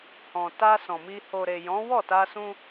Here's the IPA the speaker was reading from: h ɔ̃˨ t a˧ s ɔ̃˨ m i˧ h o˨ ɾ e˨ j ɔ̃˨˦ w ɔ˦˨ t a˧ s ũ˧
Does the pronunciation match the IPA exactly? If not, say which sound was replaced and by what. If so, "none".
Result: none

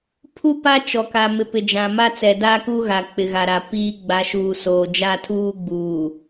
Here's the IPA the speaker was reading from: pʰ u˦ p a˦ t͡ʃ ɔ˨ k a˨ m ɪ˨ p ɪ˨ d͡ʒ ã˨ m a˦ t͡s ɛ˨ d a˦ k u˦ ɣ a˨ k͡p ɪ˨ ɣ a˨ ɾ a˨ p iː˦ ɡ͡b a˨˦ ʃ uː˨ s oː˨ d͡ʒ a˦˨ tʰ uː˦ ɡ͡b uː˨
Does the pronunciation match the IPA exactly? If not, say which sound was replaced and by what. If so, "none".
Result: none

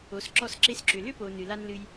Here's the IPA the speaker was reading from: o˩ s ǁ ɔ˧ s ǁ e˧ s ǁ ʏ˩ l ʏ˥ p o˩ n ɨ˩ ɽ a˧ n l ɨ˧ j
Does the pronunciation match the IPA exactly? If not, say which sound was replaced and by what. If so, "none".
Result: ɽ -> l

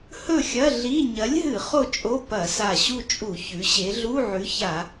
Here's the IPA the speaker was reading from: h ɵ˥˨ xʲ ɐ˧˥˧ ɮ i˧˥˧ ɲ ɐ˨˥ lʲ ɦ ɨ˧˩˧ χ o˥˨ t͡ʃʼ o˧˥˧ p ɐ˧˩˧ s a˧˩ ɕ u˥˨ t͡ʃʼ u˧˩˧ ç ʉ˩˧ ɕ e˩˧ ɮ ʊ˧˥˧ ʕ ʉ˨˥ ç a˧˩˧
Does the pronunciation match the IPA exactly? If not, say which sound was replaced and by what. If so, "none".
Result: ʊ˧˥˧ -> u˧˥˧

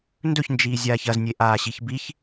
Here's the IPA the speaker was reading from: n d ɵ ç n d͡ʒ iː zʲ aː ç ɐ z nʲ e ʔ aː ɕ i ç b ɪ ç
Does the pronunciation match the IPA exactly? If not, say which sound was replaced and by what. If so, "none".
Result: ɪ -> i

